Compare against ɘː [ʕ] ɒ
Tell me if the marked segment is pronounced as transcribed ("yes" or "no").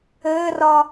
no